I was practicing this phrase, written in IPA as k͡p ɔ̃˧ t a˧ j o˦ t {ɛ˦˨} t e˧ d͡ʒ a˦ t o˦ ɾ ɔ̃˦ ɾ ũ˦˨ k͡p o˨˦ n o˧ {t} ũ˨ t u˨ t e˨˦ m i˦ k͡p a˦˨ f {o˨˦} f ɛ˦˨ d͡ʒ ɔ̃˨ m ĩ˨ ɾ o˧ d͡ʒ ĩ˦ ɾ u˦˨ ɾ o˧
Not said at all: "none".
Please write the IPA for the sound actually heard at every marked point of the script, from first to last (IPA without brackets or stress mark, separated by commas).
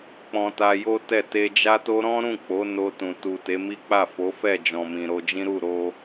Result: ɛ˦˨, t, o˨˦